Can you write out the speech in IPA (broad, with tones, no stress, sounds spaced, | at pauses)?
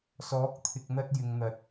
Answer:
s ɔː˨˥ k̚ t̪ʰ ɪ˨ k̚ n̪ ɐ˧ t̚ j ɪ˨ ŋ n̪ ɐ˨ t̚